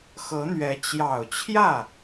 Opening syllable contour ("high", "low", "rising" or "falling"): rising